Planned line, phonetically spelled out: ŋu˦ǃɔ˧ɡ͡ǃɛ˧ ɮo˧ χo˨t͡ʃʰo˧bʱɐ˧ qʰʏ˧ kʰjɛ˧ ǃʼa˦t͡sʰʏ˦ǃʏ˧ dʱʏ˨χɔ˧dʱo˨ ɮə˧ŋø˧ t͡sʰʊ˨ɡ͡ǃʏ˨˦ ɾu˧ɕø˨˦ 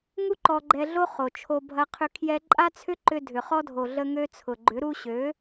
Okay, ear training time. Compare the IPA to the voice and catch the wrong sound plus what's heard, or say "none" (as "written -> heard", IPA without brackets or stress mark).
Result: none